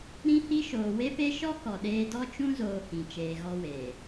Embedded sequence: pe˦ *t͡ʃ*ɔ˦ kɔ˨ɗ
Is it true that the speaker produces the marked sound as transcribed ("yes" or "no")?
no